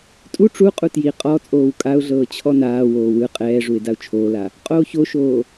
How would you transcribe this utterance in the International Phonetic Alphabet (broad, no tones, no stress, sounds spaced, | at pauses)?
tʼ u ʈ͡ʂ u qʼ u t j i qʼ ɔ t͡sʼ oː w kʼ a ʊ̯ ɮ ɤː t͡ɕʰ ɔ n aː w oː w ɯ qʼ ɛː ʐ u ɪ̯ d a ʊ̯ t͡ʃʰ oː l a | qʼ oː ç o ʃ oː